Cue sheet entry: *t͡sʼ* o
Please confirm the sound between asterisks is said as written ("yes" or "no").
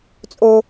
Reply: yes